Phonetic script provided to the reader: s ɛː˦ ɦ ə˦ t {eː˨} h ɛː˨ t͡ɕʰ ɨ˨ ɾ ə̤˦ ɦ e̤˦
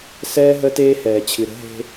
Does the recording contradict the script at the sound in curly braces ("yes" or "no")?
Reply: yes